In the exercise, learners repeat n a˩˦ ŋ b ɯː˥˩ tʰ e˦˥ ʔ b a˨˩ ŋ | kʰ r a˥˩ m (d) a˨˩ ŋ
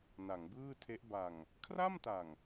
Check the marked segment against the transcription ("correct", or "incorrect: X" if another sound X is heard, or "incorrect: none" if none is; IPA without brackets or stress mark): incorrect: t